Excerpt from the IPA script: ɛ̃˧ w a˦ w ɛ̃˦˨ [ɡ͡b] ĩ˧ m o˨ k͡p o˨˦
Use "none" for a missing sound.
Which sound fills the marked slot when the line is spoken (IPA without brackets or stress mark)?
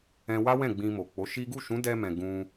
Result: ɡ͡b